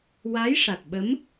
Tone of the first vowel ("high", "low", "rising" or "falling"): rising